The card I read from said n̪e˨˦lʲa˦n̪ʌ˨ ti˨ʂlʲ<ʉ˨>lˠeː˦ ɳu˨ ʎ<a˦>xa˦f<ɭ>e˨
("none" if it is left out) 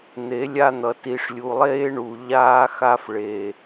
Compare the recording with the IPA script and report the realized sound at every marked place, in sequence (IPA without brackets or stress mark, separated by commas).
u˨, aː˦, ɭ